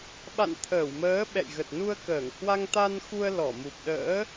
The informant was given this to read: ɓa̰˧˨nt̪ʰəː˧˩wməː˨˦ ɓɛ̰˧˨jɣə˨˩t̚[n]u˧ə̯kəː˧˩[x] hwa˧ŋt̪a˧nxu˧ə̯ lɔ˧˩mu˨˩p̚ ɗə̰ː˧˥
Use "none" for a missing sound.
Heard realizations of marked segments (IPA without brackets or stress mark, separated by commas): n, ŋ